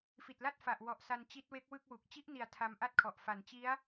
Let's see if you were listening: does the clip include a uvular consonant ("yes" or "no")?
no